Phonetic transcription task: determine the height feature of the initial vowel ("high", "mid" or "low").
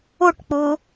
high